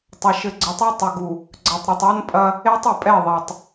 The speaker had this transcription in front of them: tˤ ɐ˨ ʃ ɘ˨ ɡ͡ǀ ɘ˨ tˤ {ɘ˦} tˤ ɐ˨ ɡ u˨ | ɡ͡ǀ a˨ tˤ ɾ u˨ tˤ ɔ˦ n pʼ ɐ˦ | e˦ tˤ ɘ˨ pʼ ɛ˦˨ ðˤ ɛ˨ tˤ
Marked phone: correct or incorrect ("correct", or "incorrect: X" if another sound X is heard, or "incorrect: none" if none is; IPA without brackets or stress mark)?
incorrect: e˦